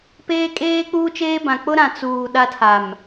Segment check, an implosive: present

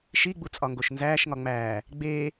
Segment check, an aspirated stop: absent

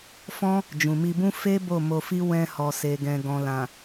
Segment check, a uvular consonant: absent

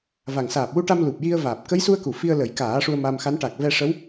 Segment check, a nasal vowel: absent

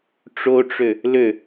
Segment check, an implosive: absent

